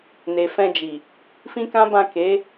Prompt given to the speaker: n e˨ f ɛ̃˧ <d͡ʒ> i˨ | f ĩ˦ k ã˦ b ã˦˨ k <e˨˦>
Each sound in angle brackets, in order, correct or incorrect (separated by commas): correct, correct